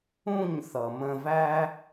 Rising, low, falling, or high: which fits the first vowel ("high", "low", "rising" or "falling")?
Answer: falling